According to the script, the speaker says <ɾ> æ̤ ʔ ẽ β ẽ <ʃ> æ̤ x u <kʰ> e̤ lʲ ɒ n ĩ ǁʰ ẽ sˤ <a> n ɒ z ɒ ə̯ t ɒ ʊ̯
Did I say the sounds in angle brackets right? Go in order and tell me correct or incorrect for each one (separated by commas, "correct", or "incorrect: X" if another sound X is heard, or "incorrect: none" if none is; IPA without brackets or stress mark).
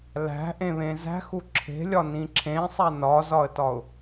incorrect: l, incorrect: z, incorrect: ǁʰ, incorrect: æ